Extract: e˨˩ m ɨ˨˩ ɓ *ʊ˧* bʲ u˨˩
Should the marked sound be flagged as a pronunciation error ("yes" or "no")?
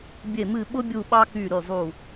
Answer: no